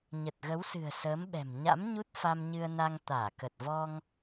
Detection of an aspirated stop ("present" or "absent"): absent